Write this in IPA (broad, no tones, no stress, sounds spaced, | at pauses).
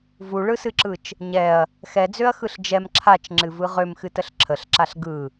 v u ɭ ɯ s ɨ ǁ ɯ t͡ʃ | ɲ ɛ ɐ̯ | x ɛ d͡z ø ɐ̯ x ɯ ɬ d͡ʒ ɛ m ǁʰ a t͡ʃ ŋ͡ǁ ɨ v ɯ ʁ ø m x ɨ t ə ɬ ǁʰ ə ɬ ǁ a ɬ ɡ ɯ